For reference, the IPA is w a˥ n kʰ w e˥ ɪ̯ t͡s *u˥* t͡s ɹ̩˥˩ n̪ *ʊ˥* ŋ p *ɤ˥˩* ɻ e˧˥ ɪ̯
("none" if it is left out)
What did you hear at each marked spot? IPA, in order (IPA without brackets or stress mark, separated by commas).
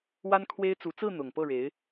u˧˥, ʊ˨˩, ɤ˥˩